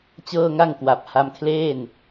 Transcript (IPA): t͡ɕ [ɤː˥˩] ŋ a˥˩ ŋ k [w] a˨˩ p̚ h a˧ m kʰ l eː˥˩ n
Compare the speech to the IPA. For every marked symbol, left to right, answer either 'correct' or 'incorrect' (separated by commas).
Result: correct, correct